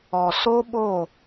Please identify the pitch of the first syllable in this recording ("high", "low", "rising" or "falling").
low